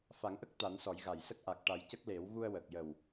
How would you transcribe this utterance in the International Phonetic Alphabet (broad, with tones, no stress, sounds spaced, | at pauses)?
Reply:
f a˨˩˦ ŋ ʔ ə˦˥ k̚ t̪ a˨˩˦ n s ɔ˨˩˦ j ɣ a˨˩˨ j s ə˦˥ k̚ ʔ a˨˩ k̚ ʈ a˨˩ j c ə˦˥ k̚ l e˨˩˦ w ɣ u˧ ə̯ w ə˨˩ k̚ j ə˨˩ w